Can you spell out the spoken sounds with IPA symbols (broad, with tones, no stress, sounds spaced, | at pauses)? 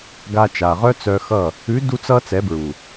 ɡ a˧ t͡ʃ a˨ ʁ œ˦ t͡s œ˧ x ʌ˦˨ | ʉ˨˦ d u˧ t͡s ʌ˧ t͡s ɛ˨˦ b ɹ u˨